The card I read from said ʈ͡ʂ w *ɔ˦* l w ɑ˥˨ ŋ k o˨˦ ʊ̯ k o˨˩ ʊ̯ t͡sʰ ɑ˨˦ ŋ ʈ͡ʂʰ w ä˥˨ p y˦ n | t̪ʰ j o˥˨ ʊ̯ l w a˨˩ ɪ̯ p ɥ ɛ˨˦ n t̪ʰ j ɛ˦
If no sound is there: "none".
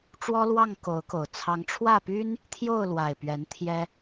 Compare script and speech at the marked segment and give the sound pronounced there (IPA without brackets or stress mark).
ɔ˦